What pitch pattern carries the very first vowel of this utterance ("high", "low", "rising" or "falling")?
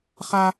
high